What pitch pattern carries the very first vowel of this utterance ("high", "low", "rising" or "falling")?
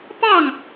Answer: falling